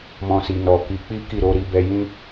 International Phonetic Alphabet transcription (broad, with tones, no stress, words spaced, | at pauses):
mɔ̃˧si˨ nɔ˨ ki˨˦k͡pi˦ki˦˨ ɾo˧ɾi˧bɛ˧ jĩ˦